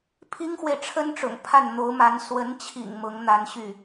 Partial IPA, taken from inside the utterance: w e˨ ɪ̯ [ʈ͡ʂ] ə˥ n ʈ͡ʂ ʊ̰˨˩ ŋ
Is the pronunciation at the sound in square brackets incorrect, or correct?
incorrect